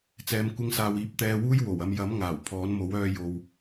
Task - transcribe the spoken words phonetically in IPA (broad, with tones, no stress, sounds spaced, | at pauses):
t͡s ɛː˨˧ m kʷ ɪ˧ ŋ s aː˨ w iː˨ p̚ t̪ ɛː˧ w uː˥ j w o˨˩ w ɐ˧ m j ɐ˨˥ m ŋ aː˨˩ w pʰ ɔː˨˥ n m o˨˥ w œː˧ j o˨ w